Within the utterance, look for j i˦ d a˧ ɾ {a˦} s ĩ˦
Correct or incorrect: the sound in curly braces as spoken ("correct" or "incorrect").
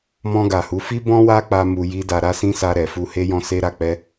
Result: correct